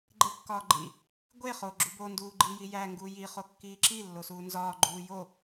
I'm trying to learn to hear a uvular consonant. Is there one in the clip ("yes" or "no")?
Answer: yes